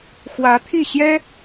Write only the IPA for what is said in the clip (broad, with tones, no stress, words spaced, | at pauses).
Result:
xwä˧˥t̪ʰi˥˩ ɕjɛ˥